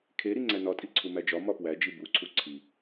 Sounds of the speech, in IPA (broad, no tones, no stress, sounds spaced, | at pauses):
kʰ e ɾ i ŋ͡ǀ æ n ɒ tʼ i ǀʰ u m æ d͡ʒ ɒ m ɒ p w æ d͡ʒ i b u ǀʰ u ǀʰ i